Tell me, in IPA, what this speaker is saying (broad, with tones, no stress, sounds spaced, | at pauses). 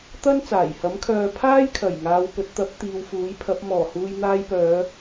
t̪ ɐ˥ n t͡s aː˨˩ j h ɐ˨˥ m kʰ œː˨˧ pʰ aː˥ j kʰ ɐ˨˩ j ŋ aː˨ w p ɵ˨ t̚ t̪ ɐ˨˥ p̚ t̪ iː˨ w f uː˨˥ j pʰ ɐ˨˥ p̚ m ɔː˨˩ h uː˨ j n̪ aː˧ j p œː˨˧